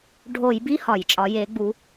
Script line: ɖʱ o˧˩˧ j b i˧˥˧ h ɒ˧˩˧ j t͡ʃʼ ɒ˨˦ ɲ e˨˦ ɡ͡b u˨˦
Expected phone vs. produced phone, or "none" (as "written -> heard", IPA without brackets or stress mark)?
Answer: ɲ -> j